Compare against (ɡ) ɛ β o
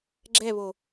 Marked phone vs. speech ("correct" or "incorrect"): incorrect